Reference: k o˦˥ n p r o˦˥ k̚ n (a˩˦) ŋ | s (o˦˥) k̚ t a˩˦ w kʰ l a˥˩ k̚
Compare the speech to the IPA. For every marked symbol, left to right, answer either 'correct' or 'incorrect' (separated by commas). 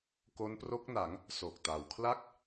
correct, incorrect